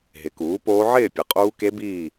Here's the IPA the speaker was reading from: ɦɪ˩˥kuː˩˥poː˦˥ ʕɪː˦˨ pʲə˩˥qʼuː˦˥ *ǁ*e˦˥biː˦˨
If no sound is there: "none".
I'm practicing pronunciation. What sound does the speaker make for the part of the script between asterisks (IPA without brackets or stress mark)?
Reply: k